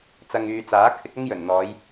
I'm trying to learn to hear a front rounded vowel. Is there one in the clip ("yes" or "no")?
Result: yes